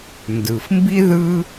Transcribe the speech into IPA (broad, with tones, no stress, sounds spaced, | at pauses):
n d ɯ˩ f m b i˥ ð ɯ˥